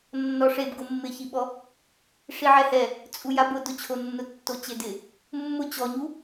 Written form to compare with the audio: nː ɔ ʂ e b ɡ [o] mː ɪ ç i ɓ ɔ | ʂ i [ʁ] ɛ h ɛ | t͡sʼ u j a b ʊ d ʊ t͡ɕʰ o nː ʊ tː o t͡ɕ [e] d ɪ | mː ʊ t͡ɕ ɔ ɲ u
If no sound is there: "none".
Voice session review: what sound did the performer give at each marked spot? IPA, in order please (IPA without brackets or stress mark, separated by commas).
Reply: o, ʕ, e